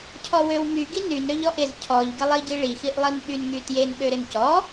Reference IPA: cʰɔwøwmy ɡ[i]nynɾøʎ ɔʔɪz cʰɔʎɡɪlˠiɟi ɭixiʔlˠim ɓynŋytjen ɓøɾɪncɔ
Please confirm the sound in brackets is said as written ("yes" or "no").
yes